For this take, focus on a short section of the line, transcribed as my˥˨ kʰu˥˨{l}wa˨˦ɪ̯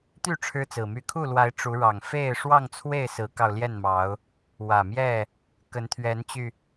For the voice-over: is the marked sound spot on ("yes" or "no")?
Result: yes